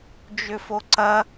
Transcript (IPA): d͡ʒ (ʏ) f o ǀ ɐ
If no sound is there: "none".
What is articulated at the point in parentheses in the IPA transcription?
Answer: ʏ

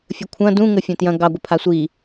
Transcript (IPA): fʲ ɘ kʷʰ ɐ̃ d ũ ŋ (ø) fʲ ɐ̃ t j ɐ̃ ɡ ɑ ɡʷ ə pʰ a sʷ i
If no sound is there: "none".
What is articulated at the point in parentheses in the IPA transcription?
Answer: ɘ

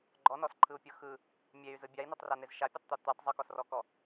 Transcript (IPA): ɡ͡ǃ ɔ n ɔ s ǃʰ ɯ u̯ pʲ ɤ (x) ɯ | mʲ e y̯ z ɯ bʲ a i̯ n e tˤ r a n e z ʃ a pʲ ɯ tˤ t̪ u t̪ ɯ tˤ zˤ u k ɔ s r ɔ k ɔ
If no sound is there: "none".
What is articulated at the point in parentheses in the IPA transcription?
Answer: x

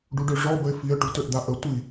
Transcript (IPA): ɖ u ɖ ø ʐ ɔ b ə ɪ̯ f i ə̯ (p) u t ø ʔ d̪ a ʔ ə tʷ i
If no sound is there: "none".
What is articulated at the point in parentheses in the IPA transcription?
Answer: ʈ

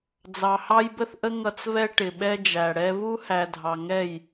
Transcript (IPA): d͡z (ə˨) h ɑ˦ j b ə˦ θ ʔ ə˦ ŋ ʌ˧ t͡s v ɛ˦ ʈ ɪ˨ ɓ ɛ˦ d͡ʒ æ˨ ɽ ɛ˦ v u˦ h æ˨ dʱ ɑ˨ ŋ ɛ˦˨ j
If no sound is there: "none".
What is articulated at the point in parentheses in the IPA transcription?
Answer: ɑ˨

